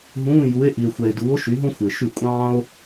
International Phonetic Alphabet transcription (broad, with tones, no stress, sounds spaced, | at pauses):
ɦ ũː˧˥˧ j u˨˥ e̯ ʔ i˨ e̯ xʷ ɛ˨ e̯ d uː˨˥ o̯ ʃ y˨˥ ɦ õ˥ xʷ ɪː˨ ʃ y˥˩ kʷʼ ɑ̃ː˥ o̯